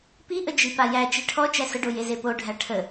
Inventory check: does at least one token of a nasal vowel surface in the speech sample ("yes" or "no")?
no